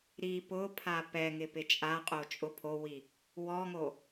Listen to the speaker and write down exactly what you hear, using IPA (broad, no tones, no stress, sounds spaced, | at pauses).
ɾ i p ʊ pʰ a p ɛ ŋ ɪ p ɪ t͡ʃʼ a qʼ o t͡ʃʼ ʊ pʰ o w i | w ɔ ŋ o